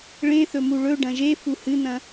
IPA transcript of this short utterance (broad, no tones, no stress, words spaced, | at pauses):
ɭẽθɵmu ɭɵ ɖɐ̃ʒe fuhɨn̪ɐ̃